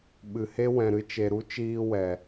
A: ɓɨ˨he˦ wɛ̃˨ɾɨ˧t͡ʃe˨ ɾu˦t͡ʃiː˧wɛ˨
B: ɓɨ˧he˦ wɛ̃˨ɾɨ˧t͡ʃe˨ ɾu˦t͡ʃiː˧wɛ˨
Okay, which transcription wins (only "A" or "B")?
A